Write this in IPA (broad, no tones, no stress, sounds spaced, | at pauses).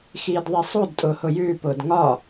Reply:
x iː d ðˤ ɛ sˤ o d tʼ ʊː h ʊ j ʉː p ʊː d ŋ ɒ